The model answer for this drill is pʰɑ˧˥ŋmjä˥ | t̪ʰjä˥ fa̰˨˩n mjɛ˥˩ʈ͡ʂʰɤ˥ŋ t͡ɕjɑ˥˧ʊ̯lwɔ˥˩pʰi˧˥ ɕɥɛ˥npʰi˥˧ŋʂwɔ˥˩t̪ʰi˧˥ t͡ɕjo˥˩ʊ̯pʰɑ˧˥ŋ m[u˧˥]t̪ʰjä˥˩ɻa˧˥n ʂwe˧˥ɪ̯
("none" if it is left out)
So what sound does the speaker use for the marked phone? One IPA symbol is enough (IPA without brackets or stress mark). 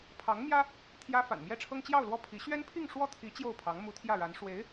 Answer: u˧˥